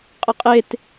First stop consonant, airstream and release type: ejective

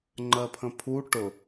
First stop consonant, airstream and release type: click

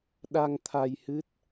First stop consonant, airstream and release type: implosive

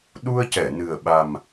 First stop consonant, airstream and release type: implosive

